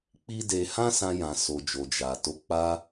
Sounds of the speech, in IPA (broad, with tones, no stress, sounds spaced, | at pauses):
k͡p i˦ d e˧ h ã˦ s ã˧ j ã˨ s o˨ d͡ʒ o˨ d͡ʒ a˨ t o˨˦ k͡p a˧